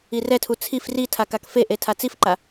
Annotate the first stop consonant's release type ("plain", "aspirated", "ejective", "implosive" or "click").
aspirated